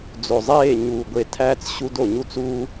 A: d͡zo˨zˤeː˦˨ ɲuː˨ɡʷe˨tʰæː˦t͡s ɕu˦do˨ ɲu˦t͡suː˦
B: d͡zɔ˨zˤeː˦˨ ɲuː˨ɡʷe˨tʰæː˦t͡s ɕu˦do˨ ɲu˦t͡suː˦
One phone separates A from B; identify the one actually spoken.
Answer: A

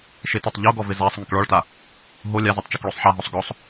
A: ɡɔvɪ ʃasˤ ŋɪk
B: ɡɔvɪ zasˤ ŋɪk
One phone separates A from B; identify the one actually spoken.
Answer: B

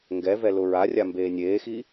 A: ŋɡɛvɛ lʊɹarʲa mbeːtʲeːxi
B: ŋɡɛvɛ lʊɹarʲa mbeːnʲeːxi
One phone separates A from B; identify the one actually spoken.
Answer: B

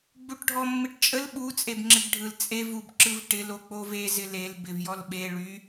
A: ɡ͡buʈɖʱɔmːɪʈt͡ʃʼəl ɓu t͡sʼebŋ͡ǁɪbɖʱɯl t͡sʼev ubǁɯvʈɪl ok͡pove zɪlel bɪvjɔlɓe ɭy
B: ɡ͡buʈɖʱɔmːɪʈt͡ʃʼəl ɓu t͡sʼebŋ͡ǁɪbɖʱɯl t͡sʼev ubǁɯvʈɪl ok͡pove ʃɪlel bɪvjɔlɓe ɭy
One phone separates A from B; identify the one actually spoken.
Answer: A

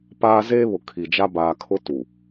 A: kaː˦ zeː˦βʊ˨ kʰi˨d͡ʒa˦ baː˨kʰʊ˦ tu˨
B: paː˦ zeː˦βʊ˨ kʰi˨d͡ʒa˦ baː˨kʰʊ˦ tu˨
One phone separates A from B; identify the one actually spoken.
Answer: B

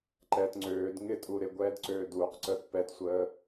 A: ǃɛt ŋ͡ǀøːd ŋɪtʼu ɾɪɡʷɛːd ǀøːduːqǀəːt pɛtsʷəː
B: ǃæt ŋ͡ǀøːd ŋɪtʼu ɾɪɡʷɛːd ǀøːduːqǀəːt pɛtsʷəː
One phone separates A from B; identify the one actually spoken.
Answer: A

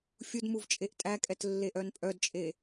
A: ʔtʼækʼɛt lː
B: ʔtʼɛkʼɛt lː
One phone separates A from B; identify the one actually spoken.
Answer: A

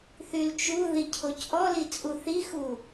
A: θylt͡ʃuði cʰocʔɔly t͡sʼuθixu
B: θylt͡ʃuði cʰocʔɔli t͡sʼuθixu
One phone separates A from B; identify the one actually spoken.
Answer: B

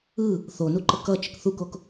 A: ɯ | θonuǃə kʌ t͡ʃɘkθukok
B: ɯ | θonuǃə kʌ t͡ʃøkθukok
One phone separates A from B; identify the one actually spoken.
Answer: A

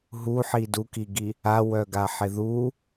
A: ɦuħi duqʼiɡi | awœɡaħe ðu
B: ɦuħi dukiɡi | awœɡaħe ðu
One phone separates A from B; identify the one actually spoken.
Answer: B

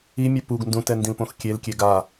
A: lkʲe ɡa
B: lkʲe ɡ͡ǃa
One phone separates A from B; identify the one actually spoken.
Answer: A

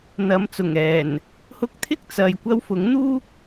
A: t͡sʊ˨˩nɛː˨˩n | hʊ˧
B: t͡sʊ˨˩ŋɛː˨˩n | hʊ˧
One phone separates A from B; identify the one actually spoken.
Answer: B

